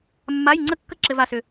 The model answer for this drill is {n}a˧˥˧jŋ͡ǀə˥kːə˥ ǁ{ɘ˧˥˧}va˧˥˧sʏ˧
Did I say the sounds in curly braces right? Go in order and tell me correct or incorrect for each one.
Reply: incorrect: mː, correct

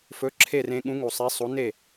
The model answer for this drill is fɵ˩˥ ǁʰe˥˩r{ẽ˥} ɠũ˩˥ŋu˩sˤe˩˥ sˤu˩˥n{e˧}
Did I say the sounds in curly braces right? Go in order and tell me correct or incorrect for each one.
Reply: incorrect: ẽ˧, incorrect: e˥˩

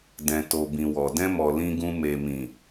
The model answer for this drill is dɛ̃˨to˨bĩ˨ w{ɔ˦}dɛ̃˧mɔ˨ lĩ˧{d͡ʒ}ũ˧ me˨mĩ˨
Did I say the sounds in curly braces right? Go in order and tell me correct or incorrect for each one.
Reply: incorrect: ɔ˨, incorrect: ɡ

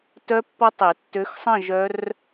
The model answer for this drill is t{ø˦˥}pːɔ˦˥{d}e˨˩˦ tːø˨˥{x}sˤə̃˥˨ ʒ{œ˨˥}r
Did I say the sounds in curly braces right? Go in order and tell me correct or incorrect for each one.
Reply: incorrect: œ˦˥, incorrect: tˤ, correct, incorrect: œ˦˥

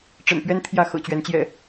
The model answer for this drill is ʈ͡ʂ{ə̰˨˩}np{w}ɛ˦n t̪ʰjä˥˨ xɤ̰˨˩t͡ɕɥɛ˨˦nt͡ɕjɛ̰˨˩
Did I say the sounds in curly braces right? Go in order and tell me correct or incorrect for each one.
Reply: correct, incorrect: ɥ

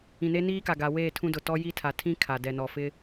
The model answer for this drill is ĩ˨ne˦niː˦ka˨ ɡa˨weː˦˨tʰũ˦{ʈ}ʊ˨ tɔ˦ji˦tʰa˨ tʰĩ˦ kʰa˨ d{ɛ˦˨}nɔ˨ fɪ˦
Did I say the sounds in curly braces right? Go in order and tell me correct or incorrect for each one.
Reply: incorrect: d, incorrect: ɛ˨

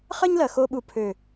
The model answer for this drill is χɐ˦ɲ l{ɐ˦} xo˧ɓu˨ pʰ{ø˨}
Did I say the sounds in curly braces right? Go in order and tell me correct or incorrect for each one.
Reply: incorrect: ɐ˨, correct

